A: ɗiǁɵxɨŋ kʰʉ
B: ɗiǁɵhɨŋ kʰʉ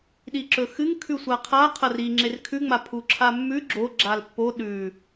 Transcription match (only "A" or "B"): A